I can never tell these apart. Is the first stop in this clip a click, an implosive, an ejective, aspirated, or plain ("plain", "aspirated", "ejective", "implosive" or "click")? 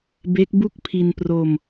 plain